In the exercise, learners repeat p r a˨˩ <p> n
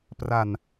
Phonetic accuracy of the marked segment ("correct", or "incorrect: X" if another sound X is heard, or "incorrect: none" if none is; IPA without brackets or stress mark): incorrect: none